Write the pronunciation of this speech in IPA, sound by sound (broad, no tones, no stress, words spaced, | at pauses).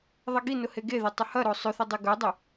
ðˤɐɡinʊ heɡeðe tˤʏhɐɾo sˤʏθɪ dˤɪɡœdˤɪ